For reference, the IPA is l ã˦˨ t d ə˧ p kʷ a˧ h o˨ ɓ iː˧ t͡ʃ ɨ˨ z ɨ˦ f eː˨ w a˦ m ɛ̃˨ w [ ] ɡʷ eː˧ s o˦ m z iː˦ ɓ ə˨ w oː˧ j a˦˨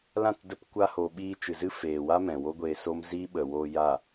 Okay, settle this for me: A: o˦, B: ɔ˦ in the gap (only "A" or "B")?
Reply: A